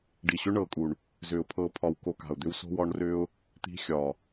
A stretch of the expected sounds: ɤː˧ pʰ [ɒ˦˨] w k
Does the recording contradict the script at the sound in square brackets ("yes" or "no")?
yes